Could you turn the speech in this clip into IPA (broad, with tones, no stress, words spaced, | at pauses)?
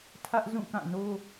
tʰä˦ʔzũ˦˨kã˦˨no˦